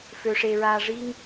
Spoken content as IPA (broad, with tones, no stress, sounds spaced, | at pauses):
f ø˧ ʂ e˧ ɹ aː˧ ʐ i˦ ŋ